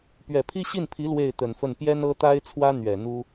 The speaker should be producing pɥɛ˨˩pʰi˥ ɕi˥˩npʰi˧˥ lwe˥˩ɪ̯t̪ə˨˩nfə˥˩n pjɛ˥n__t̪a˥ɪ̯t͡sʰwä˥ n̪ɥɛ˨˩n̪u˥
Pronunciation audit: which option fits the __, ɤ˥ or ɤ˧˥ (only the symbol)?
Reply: ɤ˥